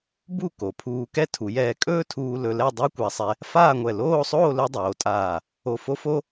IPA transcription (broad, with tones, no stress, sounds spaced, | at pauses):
b u˥˧ k o˩˧ pʰ uː˧ k ɛ˥ tʰ u˩˧ j ɛː˧ kʼ ɵː˥ tʰ uː˧ l ɵ˧ l ɛ˥˧ dˤ a˥ kʷ a˧ sˤ ɛ˧ | f aː˥˧ ŋʷ ɛ˧˩ l oː˥˧ sˤ oː˥˧ l ɵ˥ dˤ oː˩˧ tʼ aː˧˩ | o˧˩ f o˥ f o˥